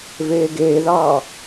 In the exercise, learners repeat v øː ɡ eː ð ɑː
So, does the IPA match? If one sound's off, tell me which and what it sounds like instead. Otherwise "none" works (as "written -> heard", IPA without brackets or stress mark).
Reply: øː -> eː